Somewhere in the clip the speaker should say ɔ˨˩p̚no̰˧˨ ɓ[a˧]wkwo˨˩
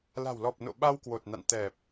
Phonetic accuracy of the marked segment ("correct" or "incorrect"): correct